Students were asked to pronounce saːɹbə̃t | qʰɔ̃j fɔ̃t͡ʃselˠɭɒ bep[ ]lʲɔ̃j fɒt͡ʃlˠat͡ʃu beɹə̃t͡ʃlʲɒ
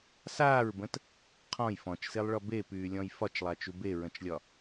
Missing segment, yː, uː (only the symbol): yː